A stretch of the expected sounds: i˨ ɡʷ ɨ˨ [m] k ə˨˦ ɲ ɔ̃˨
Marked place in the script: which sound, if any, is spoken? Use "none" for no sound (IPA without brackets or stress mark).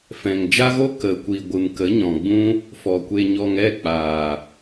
m